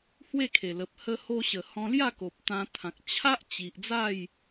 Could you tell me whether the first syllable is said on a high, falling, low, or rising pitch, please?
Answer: falling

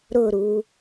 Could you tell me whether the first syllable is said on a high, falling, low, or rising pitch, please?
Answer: falling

